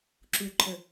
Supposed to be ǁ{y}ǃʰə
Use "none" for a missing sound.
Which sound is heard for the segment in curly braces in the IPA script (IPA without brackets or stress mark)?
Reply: u